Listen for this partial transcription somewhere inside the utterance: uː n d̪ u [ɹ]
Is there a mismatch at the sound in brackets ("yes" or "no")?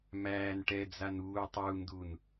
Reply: yes